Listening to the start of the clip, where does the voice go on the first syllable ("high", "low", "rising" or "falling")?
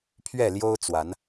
falling